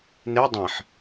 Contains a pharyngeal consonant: yes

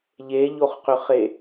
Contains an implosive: no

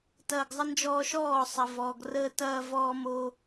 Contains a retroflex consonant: no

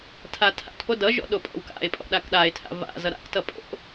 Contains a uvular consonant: no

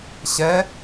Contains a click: no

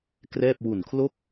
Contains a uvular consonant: no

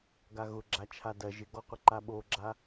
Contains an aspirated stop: yes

